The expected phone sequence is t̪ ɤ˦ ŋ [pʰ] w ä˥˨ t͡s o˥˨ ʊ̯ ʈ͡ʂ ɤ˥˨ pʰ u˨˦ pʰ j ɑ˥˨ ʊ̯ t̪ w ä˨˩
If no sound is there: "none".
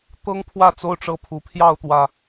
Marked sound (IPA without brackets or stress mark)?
pʰ